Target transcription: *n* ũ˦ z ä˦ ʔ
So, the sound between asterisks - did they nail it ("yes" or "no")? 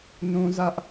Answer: yes